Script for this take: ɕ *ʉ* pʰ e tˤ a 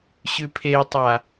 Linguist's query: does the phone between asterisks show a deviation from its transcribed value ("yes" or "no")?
no